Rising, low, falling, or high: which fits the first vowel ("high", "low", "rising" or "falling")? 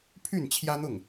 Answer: falling